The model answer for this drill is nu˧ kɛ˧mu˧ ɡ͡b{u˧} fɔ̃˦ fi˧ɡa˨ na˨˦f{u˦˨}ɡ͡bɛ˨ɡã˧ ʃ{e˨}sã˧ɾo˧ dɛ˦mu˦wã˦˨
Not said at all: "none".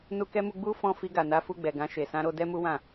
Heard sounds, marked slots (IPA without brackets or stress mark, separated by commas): u˧, u˦˨, e˨